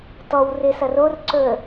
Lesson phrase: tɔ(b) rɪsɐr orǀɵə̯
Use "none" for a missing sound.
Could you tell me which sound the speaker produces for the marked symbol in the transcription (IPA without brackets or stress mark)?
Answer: w